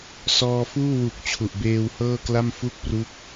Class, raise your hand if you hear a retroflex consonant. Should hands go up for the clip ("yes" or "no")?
no